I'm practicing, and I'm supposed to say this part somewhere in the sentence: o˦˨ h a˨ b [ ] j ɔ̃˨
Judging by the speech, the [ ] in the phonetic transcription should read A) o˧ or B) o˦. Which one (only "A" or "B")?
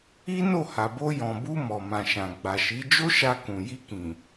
A